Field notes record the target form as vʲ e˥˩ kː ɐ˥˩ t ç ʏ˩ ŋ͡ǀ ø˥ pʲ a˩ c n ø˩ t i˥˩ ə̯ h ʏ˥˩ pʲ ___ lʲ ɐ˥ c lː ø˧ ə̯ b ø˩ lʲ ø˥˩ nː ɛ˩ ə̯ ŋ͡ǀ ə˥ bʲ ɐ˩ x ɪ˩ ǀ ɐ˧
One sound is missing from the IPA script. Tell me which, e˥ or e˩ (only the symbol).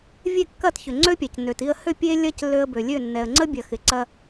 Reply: e˥